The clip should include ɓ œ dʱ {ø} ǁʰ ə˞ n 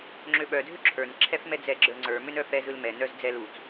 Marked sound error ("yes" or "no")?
no